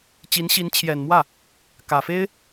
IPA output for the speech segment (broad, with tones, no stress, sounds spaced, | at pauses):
t͡ɕ i˧˥ n ɕ i˧˥ n t͡ɕʰ j ɛ˨˩ n m w ä˥˩ | k ä˨˩ f e˥ ɪ̯